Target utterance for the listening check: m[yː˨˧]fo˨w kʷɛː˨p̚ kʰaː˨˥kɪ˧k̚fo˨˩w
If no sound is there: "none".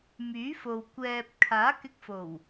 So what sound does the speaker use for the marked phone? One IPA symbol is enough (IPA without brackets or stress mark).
yː˨˥